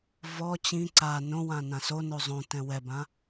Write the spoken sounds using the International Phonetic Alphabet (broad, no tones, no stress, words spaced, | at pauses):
vɔ t͡ɕĩ ǀa nõwã nãsono zˤõtɛ̃ wɛbã